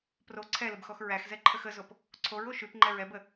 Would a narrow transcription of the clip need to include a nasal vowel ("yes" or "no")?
no